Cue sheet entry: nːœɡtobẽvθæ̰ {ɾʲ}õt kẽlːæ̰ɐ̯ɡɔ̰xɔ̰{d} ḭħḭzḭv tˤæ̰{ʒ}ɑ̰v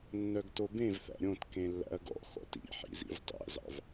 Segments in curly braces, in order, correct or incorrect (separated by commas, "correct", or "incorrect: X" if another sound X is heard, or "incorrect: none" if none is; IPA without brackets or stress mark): correct, incorrect: t, incorrect: z